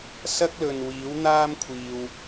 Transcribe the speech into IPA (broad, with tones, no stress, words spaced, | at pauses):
sɐ˥k̚lɵ˨nwiː˨˥w n̪aː˥mkʷʰiː˨w